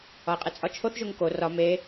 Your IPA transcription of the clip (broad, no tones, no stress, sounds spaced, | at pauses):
ɒ e̯ qʼ e t͡sʼ ɒ t͡ʃʰ o θ ʒ o ŋ k o r ɒ m e